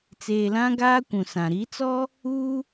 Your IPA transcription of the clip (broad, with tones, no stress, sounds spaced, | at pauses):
t͡s eː˨ l ã˦ ɡ aː˦ kʷ ũ˨ s ã˨ ɾ i˨˦ t͡s ɔ˦ | uː˦